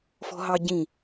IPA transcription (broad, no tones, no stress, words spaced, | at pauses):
fɔ̤ɦɑɟĩ